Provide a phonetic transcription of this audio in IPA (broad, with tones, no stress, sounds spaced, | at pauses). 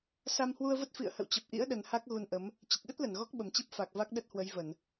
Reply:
s a˧ m h w u˧ ə̯ v ə˦˥ t̚ f ḭ˧˨ ə̯ h ə̰˧˨ w t͡ɕ ə˨˩ p̚ ʔ ḭ˧˥ ə̯ ɗ ə˨˩ n h a˦˥ k̚ ɣ u˧ n ʔ ə˨˦ m | t͡ɕ ə˨˩ t̚ ɗ ə˦˥ t̚ l ə˧˩ n ɣ ɔ˦˥ k̚ ɓ ə˨˩ m t͡ɕ i˦˥ p̚ f a˨˩ k̚ v a˦˥ k̚ ɗ ə˦˥ t̚ h w ə˨˦ j v ə˧˩˨ n